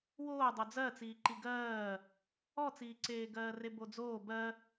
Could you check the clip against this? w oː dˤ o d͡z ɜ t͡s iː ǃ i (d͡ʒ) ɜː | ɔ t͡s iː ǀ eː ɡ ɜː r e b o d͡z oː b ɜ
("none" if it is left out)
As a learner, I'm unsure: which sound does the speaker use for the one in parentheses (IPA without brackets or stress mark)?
ɡ